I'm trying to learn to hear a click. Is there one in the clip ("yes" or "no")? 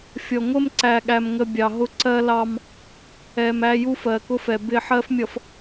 yes